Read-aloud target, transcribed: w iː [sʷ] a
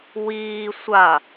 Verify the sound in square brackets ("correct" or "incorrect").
correct